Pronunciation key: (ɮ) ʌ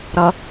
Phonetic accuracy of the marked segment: incorrect: ɾ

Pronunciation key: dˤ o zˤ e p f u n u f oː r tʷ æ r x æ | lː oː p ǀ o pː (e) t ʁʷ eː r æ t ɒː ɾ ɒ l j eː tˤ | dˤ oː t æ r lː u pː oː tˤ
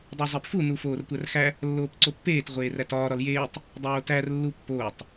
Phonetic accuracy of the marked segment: incorrect: eː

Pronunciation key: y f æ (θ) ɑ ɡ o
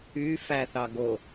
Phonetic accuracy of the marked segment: correct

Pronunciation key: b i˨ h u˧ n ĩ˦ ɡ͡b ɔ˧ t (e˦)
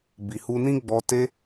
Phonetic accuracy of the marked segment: incorrect: e˧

